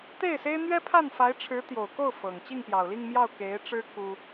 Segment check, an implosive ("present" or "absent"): absent